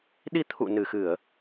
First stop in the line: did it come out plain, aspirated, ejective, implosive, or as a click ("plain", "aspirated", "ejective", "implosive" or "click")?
implosive